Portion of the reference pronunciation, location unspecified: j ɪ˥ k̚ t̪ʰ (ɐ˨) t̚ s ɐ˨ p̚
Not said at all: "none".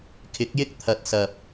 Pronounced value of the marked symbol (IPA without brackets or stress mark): ɐ˨